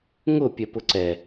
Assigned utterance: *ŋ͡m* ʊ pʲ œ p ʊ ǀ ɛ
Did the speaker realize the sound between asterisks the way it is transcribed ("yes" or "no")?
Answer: no